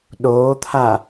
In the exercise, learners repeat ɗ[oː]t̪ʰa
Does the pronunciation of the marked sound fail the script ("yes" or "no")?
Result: no